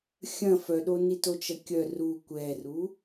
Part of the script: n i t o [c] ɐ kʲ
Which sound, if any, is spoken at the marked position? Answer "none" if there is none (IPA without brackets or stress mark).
t͡ʃ